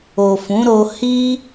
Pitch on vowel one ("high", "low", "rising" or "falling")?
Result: low